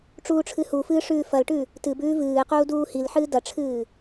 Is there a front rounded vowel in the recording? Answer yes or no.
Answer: no